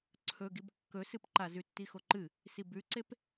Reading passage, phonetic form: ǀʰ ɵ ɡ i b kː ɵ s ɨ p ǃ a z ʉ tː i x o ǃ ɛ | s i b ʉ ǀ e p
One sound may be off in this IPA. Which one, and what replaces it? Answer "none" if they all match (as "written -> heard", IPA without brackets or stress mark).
ɛ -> ɨ